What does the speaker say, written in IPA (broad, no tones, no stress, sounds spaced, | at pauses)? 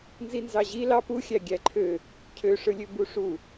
n z i n z ɑ ʑ i l ɑ p u xʲ æ ɡʲ æ ǃʰ ø | cʰ ø ʂ ɯ lʲ ø b u ʂ u